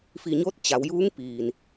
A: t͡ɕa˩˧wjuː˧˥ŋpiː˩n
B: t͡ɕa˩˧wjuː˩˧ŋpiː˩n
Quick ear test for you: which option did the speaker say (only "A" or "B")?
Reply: A